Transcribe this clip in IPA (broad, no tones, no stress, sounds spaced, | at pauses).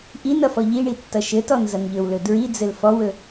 ʔ i n ʌ f ɔ ʎ i ɳ i tː ʌ ʃ ɘ t ɔ n z ʌ n ʎ ɵ w l ɵ d ɹ i d͡z ɘ l f ɔ w ɵ